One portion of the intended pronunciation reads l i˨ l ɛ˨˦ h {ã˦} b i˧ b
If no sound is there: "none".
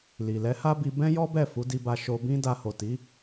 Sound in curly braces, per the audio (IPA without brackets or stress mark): a˦